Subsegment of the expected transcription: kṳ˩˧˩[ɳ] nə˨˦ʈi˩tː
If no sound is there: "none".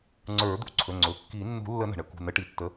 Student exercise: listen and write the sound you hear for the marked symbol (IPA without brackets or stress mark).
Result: none